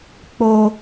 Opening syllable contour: high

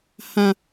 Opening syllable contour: high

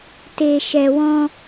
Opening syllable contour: low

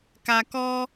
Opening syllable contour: low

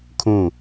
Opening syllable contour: falling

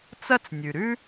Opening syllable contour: high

